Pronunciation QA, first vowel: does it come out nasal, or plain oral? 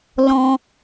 nasal